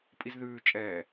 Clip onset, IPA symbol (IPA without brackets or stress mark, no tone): pʼ